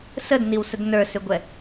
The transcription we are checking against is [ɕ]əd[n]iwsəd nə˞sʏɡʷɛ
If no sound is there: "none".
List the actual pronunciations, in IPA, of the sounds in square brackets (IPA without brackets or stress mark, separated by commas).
s, n